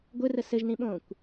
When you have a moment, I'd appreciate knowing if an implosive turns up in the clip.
yes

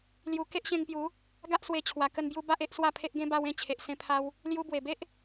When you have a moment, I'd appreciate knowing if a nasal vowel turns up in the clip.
yes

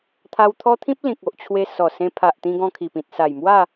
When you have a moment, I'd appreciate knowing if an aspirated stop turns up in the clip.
yes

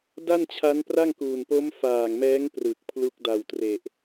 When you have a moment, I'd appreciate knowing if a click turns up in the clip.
no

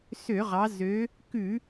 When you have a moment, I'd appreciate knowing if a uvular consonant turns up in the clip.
yes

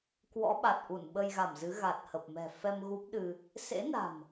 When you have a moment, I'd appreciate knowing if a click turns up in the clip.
no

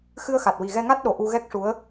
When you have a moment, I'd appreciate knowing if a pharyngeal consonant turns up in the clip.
no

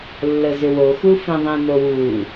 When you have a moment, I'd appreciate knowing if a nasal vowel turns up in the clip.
yes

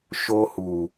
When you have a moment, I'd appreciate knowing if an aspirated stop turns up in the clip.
no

